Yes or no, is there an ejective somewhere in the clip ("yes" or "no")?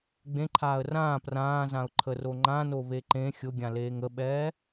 no